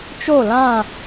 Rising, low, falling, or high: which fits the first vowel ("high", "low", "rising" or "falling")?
falling